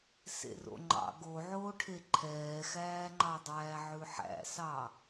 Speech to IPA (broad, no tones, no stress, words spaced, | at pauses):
sḛro̰ŋ͡ǃɑ̰ ɡoʕoːʈʰe ǃʰɛːxæːŋ͡ǃɑdˤæː ʕʉħæ̰sɑ